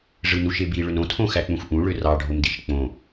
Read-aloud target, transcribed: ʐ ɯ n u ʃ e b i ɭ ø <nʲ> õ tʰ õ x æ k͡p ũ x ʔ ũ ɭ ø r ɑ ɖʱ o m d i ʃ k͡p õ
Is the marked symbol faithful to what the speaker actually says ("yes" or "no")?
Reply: no